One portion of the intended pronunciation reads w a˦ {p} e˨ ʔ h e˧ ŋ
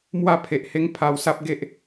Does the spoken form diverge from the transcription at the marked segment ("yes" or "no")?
yes